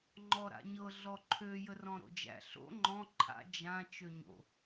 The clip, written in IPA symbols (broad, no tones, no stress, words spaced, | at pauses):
ŋ͡ǃɔɾa̰ɲɤ ɮɔǃʰø jərɔ̃ɾo̰d͡ʒæ̰ ɬo̰ ŋ͡ǃɔ̃ ǃʰa̰ d͡ʒã t͡ʃøɲo̰